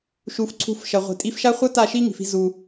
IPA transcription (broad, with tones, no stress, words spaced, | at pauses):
ʃu˨˦fǀʰṳ˧f ʃɐ˨ʁʷi̤˨tʼi˧fʃa˦ χʷɐ˦ ta˦˨ʃi˦ŋi̤˨fi̤˧ zu˧